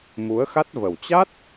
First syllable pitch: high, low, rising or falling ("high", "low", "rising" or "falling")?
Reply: rising